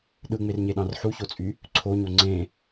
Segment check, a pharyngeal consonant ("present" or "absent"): present